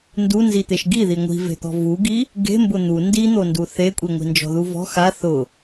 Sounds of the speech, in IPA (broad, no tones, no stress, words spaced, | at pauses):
ndunzit̪eʃ ɡiði ŋʷi̤ve̤t̪ɔ̤ vuɡi | ɡe̤ mbʊn̪u ndin̪ondu θekʷʼiŋʷi̤ nd͡ʒɔ̤ðuvɔ̤ xa θʊ